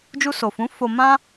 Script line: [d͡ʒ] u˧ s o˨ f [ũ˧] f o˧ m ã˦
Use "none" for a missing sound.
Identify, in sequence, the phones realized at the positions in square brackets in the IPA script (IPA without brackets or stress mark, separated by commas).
d͡ʒ, ũ˨˦